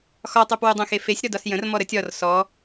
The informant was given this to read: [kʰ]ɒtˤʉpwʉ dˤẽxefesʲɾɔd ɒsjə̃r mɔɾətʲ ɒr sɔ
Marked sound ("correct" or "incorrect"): incorrect